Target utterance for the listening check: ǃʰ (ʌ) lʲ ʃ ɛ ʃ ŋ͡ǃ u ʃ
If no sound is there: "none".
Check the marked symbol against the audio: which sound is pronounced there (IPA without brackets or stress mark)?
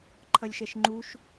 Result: ʌ